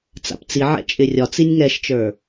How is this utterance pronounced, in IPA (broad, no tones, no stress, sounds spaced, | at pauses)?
t͡s a̰ p t͡s i ʕ ɛ̰ t͡ʃʼ ɪ rʲ ɒ t͡s i nʲ ŋ ɛ ʃ t͡ʃ ə˞